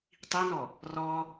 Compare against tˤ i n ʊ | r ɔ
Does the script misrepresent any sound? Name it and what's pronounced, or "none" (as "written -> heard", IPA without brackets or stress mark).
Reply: ʊ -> ɔ